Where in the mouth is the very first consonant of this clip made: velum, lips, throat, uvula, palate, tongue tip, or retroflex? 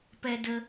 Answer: lips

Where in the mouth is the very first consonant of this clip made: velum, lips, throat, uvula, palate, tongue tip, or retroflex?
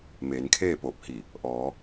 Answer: lips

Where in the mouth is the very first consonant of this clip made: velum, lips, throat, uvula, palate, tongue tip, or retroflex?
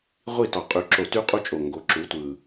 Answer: uvula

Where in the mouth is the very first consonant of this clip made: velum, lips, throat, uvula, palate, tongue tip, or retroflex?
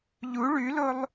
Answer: palate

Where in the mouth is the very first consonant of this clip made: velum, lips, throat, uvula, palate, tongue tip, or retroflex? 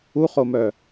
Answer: uvula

